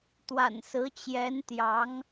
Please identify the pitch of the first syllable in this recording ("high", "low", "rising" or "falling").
low